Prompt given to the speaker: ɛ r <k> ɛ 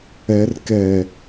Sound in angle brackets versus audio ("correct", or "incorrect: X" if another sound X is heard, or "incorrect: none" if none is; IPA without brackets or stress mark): correct